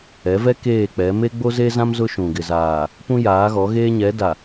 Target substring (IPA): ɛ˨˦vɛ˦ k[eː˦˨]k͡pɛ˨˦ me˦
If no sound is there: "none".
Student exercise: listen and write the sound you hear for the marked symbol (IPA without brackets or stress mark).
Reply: eː˦˨